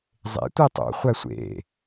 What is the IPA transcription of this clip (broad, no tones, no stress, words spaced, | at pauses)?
zˤḛ tʷetˤo̰χʷæ sʷḛ